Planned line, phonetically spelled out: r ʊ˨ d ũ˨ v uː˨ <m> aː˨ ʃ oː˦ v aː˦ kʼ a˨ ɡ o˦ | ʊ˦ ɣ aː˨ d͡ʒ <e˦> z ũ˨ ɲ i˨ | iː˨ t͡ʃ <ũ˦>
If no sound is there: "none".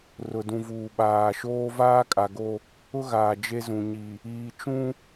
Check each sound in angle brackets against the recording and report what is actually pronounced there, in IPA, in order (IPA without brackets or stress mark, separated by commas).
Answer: ɓ, e˦, ũ˦